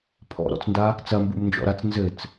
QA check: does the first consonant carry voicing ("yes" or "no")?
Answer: no